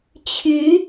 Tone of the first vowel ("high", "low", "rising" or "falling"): rising